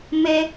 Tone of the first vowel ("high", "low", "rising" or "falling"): high